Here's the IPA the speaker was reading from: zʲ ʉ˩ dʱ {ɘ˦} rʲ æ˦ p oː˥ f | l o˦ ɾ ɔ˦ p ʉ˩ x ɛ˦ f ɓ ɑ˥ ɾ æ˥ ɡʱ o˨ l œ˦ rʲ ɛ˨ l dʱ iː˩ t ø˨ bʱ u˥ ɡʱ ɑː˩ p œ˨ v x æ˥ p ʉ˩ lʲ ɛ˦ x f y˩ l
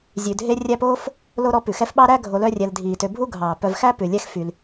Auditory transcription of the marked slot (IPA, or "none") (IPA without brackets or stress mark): e˦